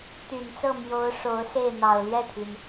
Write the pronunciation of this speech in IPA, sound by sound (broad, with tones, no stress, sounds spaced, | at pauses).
t̪ y˨˩ n t͡s ɤ˥˩ m j o˧˥ ʊ̯ ʂ o˧˥ ʊ̯ s e˥˩ ɪ̯ n̪ ɑ˨˩ ʊ̯ l ɥ ɛ˥˩ t̪ʰ i˩ n